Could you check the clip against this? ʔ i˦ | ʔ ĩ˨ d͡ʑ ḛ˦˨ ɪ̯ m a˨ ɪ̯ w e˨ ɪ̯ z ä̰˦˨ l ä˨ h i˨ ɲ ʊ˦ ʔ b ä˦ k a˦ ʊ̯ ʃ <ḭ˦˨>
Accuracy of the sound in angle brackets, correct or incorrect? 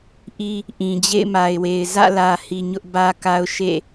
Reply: incorrect